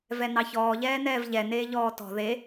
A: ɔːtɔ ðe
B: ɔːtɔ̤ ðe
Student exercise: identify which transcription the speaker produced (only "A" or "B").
B